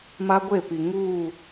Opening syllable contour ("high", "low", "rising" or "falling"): high